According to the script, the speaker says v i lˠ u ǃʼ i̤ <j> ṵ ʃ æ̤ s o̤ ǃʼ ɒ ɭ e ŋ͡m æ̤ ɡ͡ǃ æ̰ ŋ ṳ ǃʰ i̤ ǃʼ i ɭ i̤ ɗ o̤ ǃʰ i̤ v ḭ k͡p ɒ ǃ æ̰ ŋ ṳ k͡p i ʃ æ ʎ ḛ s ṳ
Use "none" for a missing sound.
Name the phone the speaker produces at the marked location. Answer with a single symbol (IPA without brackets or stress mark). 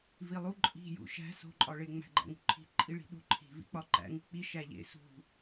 j